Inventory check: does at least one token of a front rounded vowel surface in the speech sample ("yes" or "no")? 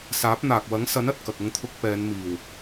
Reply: no